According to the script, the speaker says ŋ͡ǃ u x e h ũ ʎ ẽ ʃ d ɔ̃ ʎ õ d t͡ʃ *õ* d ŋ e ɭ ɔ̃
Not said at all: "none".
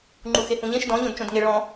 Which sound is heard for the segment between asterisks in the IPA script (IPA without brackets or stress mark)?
õ